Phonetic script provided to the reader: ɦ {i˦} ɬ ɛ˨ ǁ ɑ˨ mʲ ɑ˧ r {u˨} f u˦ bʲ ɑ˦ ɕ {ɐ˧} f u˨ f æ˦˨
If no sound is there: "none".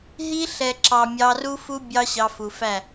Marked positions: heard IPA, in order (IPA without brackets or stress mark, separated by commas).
i˦, u˦, ɑ˧